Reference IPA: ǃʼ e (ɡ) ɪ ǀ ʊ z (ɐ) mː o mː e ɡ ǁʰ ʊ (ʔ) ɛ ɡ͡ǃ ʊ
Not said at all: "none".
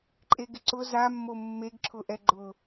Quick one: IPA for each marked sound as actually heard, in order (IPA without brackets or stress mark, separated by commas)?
ɡ, a, ʔ